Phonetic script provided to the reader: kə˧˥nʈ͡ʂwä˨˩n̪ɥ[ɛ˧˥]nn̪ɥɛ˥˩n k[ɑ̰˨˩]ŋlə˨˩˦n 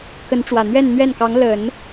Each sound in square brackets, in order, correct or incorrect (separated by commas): incorrect, incorrect